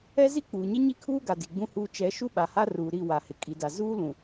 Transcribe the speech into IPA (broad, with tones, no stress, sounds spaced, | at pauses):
ɛ˦ z i˦ k͡p uː˨ ɲ ɪ˦ ɲ i˦ kʰ uː˦ ɡ a˨ d i˨ ɡ͡b ũ˦ h uː˦ t͡ʃ ɛ˨˦ ʃ u˦ ɓ a˨ h a˦ r uː˨ ɾ i˦˨ w a˨ h ɪ˨ kʼ i˨ d a˨ z uː˦ l ũ˨